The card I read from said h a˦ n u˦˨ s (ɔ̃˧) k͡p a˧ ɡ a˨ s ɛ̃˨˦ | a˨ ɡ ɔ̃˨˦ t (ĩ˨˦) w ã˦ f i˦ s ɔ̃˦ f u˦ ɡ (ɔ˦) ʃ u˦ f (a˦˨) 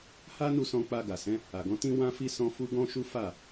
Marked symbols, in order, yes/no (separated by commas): yes, no, no, yes